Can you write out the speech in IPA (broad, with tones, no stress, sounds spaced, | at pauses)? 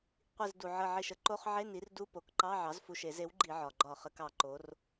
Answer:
qʷ i˧˩ z d u˩ ʕ ə˧˩ ʕ i˧˩ ʃ ə˧˩˧ ǃ o˧˥˧ χ ʕ e˧˥˧ n i˩˥ r d u˧˥˧ p o˩˥ k ǃ ɑ˧˥˧ ʕ ɑ˩˥ z f u˧˩ ʃ e˧˩˧ z e˩˥ w ɡ͡ǃ i˧˩˧ ʕ ɒ˩ ɡ͡ǃ ɒ˧˩˧ χ ə˩˧ k ɑ˩ ǃ o˩˧ r